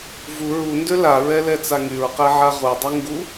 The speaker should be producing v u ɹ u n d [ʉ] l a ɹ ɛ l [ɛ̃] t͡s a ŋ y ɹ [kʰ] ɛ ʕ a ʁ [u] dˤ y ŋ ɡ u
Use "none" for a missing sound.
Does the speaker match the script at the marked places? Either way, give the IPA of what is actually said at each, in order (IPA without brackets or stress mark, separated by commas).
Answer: ø, ɛ, q, u